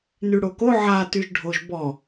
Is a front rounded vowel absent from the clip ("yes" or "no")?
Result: no